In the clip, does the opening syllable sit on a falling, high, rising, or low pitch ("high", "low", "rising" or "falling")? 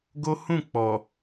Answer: high